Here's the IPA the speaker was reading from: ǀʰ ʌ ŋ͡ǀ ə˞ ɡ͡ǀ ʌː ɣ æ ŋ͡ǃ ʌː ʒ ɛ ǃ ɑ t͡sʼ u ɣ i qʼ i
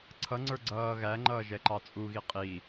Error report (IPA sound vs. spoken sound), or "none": none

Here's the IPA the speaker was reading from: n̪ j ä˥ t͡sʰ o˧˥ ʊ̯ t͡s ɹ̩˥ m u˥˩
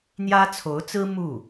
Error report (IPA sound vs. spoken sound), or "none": none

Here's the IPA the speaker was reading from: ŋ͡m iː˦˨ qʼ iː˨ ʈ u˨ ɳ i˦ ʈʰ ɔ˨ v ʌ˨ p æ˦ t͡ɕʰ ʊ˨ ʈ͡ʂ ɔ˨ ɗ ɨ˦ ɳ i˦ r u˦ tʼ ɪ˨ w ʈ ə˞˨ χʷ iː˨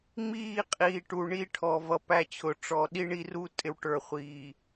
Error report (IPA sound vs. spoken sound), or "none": ɨ˦ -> i˦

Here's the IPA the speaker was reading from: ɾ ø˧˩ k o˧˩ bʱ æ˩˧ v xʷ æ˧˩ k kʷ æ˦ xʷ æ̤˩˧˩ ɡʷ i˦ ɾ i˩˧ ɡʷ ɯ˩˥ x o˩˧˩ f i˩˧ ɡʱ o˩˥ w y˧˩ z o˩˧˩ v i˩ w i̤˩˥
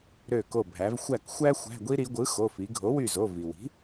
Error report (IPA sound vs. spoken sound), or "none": kʷ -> xʷ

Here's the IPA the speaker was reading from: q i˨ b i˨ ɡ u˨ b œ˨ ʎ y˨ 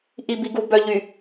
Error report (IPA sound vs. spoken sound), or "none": q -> ʔ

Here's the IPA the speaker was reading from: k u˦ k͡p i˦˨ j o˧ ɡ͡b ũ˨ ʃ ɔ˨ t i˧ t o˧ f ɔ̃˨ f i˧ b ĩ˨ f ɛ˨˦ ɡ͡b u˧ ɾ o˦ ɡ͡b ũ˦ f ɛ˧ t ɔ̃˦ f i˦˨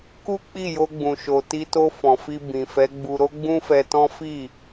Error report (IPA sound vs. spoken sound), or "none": ɔ˨ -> o˨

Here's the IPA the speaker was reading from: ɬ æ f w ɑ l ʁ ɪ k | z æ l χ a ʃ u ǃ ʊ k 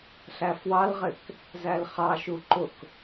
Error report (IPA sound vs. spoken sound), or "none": a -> ɑ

